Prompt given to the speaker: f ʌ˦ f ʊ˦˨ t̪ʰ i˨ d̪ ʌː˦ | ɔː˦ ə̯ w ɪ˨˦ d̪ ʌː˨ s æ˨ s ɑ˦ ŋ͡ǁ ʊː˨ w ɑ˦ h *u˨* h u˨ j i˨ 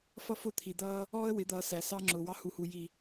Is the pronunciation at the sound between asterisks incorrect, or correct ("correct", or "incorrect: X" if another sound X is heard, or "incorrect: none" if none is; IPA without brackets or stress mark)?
correct